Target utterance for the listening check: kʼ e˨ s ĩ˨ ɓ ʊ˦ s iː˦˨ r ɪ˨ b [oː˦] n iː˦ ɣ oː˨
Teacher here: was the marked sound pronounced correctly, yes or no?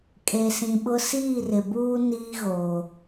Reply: no